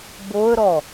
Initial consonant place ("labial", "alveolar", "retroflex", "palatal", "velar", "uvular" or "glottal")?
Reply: labial